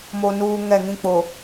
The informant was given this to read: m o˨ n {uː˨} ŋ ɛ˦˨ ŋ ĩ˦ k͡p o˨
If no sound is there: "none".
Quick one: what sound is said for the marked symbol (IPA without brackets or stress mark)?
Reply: uː˨